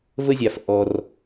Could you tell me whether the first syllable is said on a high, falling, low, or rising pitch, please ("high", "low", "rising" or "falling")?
high